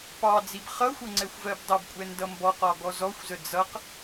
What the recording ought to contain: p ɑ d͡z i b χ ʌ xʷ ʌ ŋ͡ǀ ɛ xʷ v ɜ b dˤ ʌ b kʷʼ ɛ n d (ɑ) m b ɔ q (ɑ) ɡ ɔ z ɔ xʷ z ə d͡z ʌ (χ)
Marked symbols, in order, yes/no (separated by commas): no, no, no